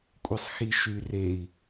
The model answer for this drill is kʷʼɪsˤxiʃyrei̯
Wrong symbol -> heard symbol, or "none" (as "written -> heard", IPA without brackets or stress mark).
none